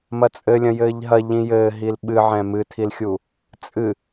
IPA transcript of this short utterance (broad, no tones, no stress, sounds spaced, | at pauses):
m ɐ t͡sʼ ɘ lʲ ɐ̃ j ɘː ʎ ɦ ɐ ʎ ĩ j ɘː ɦ i l ɓ ɨ ʕ ɛ̃ m ɨ tʰ i l xʲ u | t͡sʼ ɨ